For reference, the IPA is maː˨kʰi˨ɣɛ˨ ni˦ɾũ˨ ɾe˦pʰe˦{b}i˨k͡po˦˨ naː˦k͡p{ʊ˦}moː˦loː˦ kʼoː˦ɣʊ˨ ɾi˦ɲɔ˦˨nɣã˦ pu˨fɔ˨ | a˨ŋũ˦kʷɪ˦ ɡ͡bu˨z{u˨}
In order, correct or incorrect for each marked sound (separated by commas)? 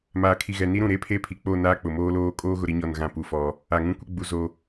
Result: incorrect, incorrect, incorrect